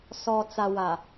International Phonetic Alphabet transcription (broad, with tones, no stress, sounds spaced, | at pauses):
s ɔ˨ t͡s a˨ w a˨